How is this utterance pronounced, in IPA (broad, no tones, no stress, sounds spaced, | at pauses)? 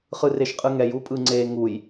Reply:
χ ɯ r e ʃ qʼ ɯ ŋ ɛ j u pʼ ɯ ŋ͡ǀ e ŋ u j